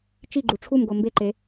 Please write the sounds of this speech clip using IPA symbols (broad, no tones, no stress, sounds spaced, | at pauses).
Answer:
t͡ʃ i ɡ͡ǃ u ʈ͡ʂʰ u m ɡ o m b e ǃ e